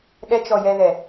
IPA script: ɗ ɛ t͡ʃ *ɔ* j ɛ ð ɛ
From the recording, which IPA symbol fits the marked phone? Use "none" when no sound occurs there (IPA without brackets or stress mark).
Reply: ɔ